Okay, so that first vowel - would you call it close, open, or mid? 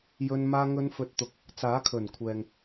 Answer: mid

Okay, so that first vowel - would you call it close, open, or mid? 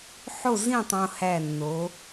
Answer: mid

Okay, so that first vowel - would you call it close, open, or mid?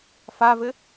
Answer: open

